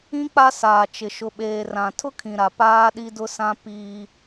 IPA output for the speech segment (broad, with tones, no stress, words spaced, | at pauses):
ĩ˦ k͡pa˦saː˨t͡ʃɪ˨ ʃʊ˨ɓeː˨rã˨ tʰʊ˦kʰĩ˨ɾa˨ paː˦ɗi˦dʊ˦sã˦ piː˦